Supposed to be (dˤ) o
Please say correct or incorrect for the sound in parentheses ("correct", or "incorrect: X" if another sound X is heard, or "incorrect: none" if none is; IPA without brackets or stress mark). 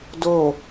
incorrect: d